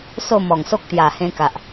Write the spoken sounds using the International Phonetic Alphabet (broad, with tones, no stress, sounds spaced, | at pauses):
s o˥˧ m ɔ˨˩ ŋ s o˦ k̚ t̪ j a˨˩ h ẽ˧ k a˨ ʔ